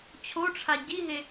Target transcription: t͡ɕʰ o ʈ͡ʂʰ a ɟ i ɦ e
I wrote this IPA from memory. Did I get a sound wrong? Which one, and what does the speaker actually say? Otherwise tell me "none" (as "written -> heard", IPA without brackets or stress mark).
none